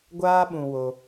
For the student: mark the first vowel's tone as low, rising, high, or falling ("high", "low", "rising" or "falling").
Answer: high